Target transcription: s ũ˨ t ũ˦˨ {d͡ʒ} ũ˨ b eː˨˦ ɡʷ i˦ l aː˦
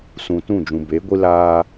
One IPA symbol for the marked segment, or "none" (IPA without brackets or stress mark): d͡ʒ